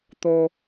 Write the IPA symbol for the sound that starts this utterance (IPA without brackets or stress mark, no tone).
t̪